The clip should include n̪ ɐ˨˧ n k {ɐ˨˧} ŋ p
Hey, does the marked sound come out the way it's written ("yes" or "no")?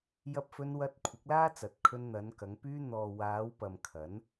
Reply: yes